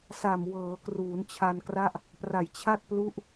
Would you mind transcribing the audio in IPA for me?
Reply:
s a˨˩ m w ɤː˩˦ k r uː˩˦ n t͡ɕʰ a˧ n k r a˥˩ ʔ | p r a˨˩ j t͡ɕʰ a˥˩ t̚ p l u˦˥ ʔ

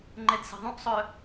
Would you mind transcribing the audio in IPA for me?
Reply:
ŋ͡ǃ ɛ d s ɛ̤ ðˤ ũ ʔ sˤ œ

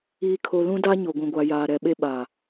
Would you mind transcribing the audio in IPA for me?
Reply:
iː˨ kʰ o˨ l ũ˦ d a˦ ɲ o˨ ɡʷ ũ˨ ɡʷ a˨ j aː˨ ɾ ɛ˨ ɓ e˦ ɓ a˨

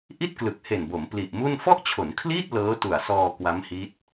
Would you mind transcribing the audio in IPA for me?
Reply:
ʔ i˥˩ t̚ k l ɯ˨˩ k̚ h e˨˩ n b o˩˦ m p l i˨˩ ʔ m u˥˩ n f ɔ˥˩ ʔ t͡ɕʰ o˩˦ n kʰ l iː˥˩ t̚ l ɤː˦˥ t u˨˩ a̯ s ɔː˧ k w a˦˥ m h i˦˥ t̚

